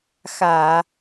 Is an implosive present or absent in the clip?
absent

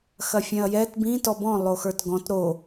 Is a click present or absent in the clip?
absent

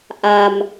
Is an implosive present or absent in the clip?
absent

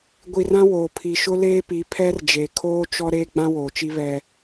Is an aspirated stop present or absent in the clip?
present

